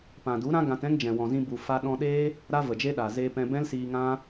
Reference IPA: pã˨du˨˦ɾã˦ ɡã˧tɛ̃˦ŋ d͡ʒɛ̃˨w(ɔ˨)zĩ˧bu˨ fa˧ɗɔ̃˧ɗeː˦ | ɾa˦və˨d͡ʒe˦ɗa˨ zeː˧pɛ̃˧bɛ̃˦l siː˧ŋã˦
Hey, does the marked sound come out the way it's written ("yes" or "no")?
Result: no